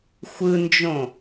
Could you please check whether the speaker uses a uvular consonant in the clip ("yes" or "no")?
no